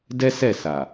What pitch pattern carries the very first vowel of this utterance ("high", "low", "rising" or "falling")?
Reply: high